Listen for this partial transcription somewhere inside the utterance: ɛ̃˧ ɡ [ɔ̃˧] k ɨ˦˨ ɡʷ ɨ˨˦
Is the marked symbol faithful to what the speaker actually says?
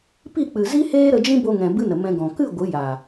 no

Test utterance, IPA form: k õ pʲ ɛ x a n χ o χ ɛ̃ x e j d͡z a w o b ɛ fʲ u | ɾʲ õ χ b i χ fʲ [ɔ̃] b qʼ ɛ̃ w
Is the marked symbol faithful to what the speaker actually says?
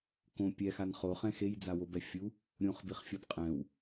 no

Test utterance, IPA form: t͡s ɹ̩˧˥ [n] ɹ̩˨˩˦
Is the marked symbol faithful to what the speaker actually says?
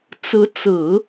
no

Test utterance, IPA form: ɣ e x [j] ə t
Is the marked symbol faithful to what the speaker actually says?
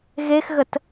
no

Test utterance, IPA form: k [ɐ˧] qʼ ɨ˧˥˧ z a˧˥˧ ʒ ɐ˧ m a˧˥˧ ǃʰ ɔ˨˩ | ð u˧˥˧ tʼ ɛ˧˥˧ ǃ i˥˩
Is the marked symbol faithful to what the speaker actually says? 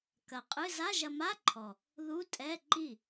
yes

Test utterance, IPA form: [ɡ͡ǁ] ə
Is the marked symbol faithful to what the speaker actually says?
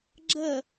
yes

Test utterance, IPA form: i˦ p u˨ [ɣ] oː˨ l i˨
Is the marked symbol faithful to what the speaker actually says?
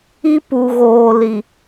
yes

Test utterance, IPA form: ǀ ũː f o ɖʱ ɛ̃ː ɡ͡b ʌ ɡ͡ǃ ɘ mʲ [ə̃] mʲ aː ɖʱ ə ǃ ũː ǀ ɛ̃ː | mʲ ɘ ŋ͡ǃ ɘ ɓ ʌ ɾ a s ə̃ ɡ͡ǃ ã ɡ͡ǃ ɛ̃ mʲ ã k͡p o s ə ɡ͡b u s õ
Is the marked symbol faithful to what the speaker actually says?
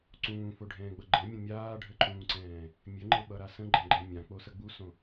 yes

